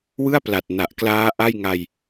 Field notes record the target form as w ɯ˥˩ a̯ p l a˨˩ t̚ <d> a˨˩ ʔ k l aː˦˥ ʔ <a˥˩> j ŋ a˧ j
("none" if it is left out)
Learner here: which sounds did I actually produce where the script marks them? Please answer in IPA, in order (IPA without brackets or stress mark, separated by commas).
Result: n, a˥˩